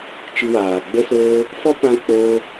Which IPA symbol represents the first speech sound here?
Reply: t͡ʃ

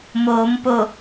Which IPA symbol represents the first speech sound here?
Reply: m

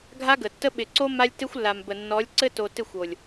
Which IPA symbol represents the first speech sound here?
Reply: ɡʱ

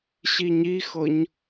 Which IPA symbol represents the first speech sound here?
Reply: ɕ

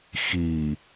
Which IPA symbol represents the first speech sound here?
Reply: x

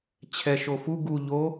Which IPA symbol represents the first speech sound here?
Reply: t͡ɕʰ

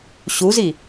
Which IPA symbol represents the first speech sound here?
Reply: ɕ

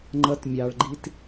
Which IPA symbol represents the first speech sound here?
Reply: ŋ͡ǃ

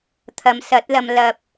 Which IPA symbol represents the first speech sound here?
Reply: t̪ʰ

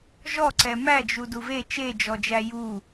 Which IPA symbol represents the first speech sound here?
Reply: ʒ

